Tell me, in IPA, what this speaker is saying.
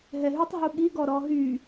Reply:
ɦɛɦytˤ ɦuɠiɡɔ ɾɔɦy

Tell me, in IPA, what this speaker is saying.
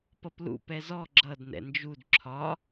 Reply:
pʌplṵ pɛzɔ ɡ͡ǁʌd nɛ̰nd͡ʒud ǁʰɒ

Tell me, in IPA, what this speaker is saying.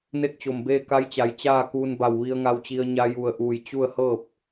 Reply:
ne˥˨k̚t͡ɕo˧˩mbeː˥˨ ka˧˥jt͡ɕa˩˧j t͡ɕaː˥˨ kuː˧n ba˧˩wʋi˧ə̯ŋa˧wt͡ɕi˧ə̯ ɲa˧ju˧˩ə̯ʔuː˧˩j t͡ɕu˥˨ə̯hɤː˥˨p̚

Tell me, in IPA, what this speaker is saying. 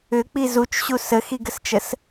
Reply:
ʏk͡pi zut͡ʃɕu səxiɡəst͡ʃəs

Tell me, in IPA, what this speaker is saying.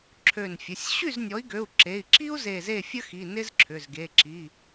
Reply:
ǁʰø˧˩nfʲə˩˧˩sʲ ɕy˥˩znʲɔ˩˥i̯ɡø˩˧˩u̯ ǁe˩˧˩i̯ǁi˥u̯ ze˧˩ze˥˩fʲə˥xi˩˧˩ nɪ˥zǁʰʏ˩˧˩zɡe˩˧˩ǁi˩˧˩

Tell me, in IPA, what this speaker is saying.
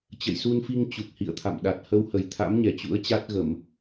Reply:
t͡ɕə̰˧˨jsu˧nfi˧ŋ t͡ɕu˨˩k̚hḭ˧˨ə̯t̪ʰa̰˧˨m ɗa˨˩t̚hə˧whə˨˩j t̪ʰa̰˧˥mɲɛ˨˩ t͡ɕṵ˧˥ə̯t͡ɕa˦˥t̚ɣə˧˩˨m

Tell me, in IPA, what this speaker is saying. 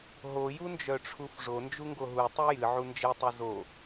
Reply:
ɦojund͡ʒœʈ͡ʂʰuf ʐond͡ʒuŋɡo ɦutˤɨ jɨʕu nd͡ʒɨtˤɨ zo

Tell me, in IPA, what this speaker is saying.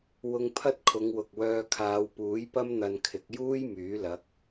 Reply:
wʊ˧ŋ pʰɐ˥t̚kʰʊ˨˧ŋwʊ˨k̚wœː˧ kʰaː˨˧wpuː˨˥jpɐ˥m n̪ɐ˧nkʰɪ˨˥k̚ juː˥j myː˨˥lɐ˨˥k̚

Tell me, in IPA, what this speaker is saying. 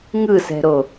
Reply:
ŋɯsɛ̤ɾo

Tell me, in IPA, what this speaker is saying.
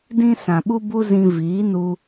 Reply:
dĩ˦ sã˨ɓu˦ bu˦zĩ˧ viː˨˦nu˧

